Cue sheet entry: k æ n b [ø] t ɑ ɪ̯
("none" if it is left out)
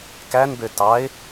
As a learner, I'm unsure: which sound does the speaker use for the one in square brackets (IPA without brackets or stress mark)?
ø